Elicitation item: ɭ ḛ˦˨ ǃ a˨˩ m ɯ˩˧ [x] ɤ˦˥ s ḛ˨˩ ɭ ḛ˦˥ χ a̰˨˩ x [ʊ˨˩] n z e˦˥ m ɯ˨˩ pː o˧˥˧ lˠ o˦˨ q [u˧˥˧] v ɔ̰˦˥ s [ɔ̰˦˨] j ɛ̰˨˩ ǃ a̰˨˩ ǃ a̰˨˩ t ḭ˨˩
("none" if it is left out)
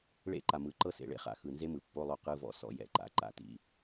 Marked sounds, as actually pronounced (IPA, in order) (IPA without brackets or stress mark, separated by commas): ǃ, ɯ˨˩, ɯ˧˥˧, ɔ̰˩˧